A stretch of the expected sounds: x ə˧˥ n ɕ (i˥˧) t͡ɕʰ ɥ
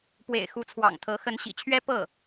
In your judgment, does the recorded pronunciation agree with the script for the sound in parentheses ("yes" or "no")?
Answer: no